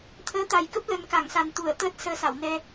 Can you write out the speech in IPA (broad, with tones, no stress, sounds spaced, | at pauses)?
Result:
t̪ʰ əː˨˦ t̪ a˨˩ j k ə˦˥ p̚ l ə˧ n k a˧˩ ŋ s a˨˩ n t̪ u˧˩ ə̯ t̪ əː˦˥ t̚ s əː˧ s a˧˩ w n ɛ˧